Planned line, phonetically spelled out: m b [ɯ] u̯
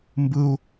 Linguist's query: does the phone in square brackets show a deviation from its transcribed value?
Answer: no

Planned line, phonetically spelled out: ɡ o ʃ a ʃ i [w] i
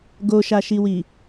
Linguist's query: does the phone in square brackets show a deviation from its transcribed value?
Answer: no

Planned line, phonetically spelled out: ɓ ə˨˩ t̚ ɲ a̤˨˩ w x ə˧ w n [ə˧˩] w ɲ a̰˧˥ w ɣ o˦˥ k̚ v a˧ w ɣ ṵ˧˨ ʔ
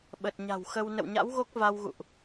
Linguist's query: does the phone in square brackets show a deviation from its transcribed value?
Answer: yes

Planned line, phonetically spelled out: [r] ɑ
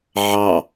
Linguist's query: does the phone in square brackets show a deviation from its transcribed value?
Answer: yes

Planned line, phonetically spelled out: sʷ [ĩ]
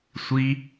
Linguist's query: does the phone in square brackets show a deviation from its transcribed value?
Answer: yes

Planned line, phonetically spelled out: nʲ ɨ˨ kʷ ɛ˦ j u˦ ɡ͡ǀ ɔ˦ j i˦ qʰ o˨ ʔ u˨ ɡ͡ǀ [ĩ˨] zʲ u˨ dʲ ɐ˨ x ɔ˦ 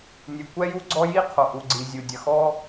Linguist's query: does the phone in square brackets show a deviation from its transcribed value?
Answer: yes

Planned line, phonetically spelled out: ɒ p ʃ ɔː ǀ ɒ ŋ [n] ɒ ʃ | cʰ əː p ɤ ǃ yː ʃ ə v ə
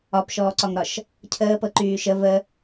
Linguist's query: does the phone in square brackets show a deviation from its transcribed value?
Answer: yes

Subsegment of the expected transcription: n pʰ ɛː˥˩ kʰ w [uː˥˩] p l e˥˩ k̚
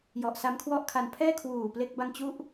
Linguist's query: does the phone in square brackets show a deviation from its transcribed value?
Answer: yes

